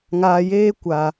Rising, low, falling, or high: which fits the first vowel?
low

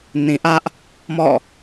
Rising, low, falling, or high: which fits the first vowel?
low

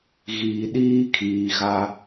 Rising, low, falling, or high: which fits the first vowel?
low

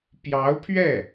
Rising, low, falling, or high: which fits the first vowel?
rising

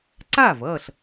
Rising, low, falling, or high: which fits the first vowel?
falling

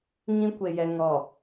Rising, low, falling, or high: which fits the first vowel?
high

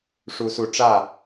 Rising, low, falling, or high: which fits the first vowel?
high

